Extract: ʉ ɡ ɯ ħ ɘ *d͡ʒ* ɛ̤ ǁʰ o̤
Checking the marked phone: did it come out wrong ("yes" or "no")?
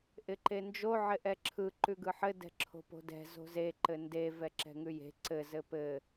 yes